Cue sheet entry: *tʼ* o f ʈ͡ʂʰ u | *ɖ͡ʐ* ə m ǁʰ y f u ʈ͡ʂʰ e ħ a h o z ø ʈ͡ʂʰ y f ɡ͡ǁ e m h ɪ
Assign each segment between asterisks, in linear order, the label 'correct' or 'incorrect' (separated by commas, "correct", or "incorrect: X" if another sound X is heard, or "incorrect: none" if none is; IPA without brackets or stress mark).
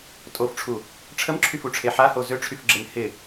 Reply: correct, incorrect: ʈ͡ʂʰ